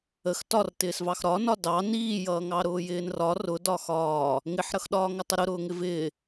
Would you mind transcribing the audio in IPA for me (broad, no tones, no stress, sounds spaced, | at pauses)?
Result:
ə x t ɒ r t ɪː s v ɑ x ɾ ɒ n ɒ d ɑ n iː j ʌː ŋ ɑ ɾ ʊː j ɪː n r ɒ r ʊ d ɒ x ɒː | ŋ ɪ ħ ɾ ʌ x ɗ ɒː ŋ ʌ tˤ ə ɾ ʊ ɾ ʊː ŋ ɪ v ɪː